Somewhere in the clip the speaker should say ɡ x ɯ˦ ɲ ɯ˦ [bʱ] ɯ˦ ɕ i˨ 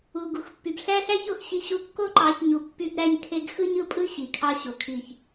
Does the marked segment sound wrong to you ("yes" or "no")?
yes